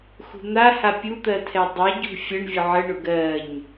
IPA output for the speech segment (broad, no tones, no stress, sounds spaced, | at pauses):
x ṳ n̪ a h a pʲ u t̪ ɜ tʰ ɛ dˤ ɛ ɟ ṳ fʲ ə ɳ vʲ ʊ ʕ ə ɳ ʊ ɡ ɜ ɲ